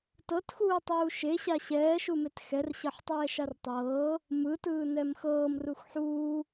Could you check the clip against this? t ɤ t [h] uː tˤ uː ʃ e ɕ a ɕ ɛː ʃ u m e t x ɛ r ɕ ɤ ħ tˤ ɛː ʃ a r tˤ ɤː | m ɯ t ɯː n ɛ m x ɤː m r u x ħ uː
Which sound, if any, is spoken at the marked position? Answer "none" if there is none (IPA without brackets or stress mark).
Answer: x